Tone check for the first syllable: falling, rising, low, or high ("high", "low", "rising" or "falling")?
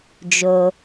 low